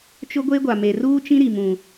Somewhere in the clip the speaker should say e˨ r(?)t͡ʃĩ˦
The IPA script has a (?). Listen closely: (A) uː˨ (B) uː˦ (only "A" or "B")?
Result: B